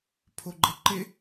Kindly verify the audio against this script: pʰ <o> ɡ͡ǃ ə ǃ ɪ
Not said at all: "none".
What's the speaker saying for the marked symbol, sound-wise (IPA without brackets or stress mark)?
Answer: o